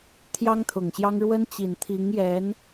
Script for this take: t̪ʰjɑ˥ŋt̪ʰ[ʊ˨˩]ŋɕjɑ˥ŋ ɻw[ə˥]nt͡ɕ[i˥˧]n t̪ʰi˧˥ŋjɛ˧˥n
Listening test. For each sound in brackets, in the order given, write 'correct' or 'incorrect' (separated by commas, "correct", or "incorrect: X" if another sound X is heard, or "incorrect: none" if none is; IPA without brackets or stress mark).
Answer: correct, correct, incorrect: i˨˩